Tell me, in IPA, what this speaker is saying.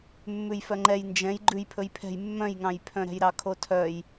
mː ʉ j f œ ŋ͡ǃ ɛ j n d͡ʒ ɛ̃ j ɡ͡ǃ ʉ j pʰ ɵ j pʰ ɛ̤ j mː œ̃ j ŋ ɑ̃ j pʰ œ̃ ɾ ɛ̤ j ɾ ɑ kʰ o tʰ œ j

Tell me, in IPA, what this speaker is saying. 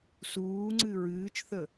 s uː ŋ͡ǀ ɨ ɹ ɨː t͡ʃ θ ə

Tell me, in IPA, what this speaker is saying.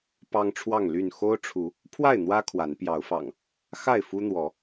p ɑ˦ ŋ ʈ͡ʂʰ w ɑ˥˨ ŋ l y˥˨ n x o˦ ʊ̯ ʈ͡ʂʰ u˨˦ | pʰ w a˥˨ ɪ̯ n̪ w ä˦ kʰ w a˨˦ n p j ɑ˨˦ ʊ̯ f ɑ̰˨˩ ŋ | x a˥˨ ɪ̯ f u˦ n̪ w ɔ˨˦

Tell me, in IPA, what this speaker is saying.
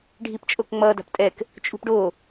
ɖʱ i p t͡ʃʼ o k ŋ͡m ʌ d a̤ p tʼ ɛ k | t͡ʃʼ ṳ p ɖ o

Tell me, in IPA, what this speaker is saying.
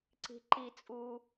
ǀ i̤ ǃ i t͡sʼ u

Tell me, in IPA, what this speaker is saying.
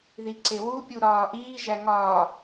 ð i ǀ e w u pʲ u ɾ ɒː ʔ iː ʒ æ ŋ ɒ

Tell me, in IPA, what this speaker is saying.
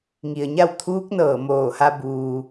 ŋ i˩ ə̯ ɲ a˥˨ w t̪ʰ uː˧˥ k̚ n ɤː˧˩ m oː˧˩ h a˧ b uː˩

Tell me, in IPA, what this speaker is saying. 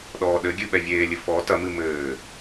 ɗ ɔː ɗ ɘ ɡʲ ɨ ɓ ɛ vʲ eː lʲ ɨ f ɔ t ɐ m ɨ m ɘː

